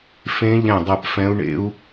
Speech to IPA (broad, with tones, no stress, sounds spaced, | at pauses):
f ẽ˦˥ ʎ ɛ̃˦˨ dˤ ɛ˦˨ p f ɛ̃˦˥ u̯ ɳ ḛ˦˥ u̯